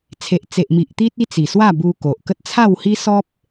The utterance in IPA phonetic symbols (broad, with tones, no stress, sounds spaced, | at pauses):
t͡sʰ e˨ ʔ t͡s e˨ ʔ m i˨ ʔ t̪ i˦ t̚ i˦ t͡s i˨˩ s w a˥˧ b u˧ k o˨ ʔ k ə˦ t̚ t͡sʰ a˥˧ w h i˦ s ɔ˦ p̚